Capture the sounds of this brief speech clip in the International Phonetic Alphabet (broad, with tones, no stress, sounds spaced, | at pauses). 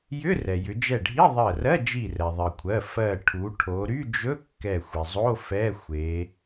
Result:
j ʏ˧˥˧ r ɛ˩ j ʏ˩˧ d͡ʒ ɛ˧˩ ɖʱ i˧˥˧ ðˤ ɜ˧˩ r ɜ˧˥˧ d͡ʒ i˧˩ r ɛ˩ ðˤ ɜ˩ kʷʰ ɜ˩˧˩ f ɜ˧˩ ʈʰ u˩˧ ʈʰ o˩˧ ɾ y˧˥˧ d͡ʒ ɵ˧˥˧ kː ɛ˧˩ xʷ i˩ zˤ o˧˥˧ f ɛ˧˥˧ xʷ e˩˧